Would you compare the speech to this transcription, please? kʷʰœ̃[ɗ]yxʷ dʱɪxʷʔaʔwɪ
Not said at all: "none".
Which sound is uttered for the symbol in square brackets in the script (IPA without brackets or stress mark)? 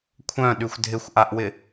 ɗ